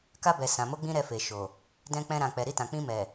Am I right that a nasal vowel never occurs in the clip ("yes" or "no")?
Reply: no